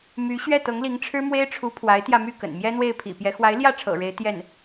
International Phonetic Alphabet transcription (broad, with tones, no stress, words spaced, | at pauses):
my˧˥ɕɥɛ˥˩ t̪ɤ˧˥ŋli˧˥ŋʈ͡ʂʰɻ̩˥ mwe˥ɪ̯ʈ͡ʂʰu˧˥ pʰwa˧˥ɪ̯t̪jä˧my˥˩kə̰˨˩n mjɛ˥n̪we˥˩ɪ̯pʰḭ˨˩pjɛ˧˥ xwa˧˥ɪ̯ljä˥˩ʈ͡ʂʰɤ̰˨˩ ɻe˧˥ɪ̯ t̪jɛ˥˩n